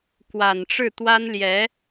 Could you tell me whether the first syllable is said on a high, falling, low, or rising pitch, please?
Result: low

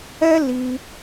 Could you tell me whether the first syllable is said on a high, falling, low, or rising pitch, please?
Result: high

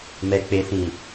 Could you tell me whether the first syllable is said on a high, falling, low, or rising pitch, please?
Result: low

